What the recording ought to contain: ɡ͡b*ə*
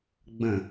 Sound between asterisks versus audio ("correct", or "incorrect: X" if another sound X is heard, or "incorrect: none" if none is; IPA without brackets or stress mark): incorrect: ə̃